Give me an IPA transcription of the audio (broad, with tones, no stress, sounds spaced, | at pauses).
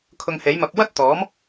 kʰ ʊ˧ ŋ h e˨˥ j m ɐ˧ p̚ w ɐ˥ t̚ t̪ ɔː˨˥ m